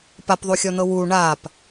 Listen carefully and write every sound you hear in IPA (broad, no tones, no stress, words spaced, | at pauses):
papðˤuxʲɔn̪ɤ wu ɳap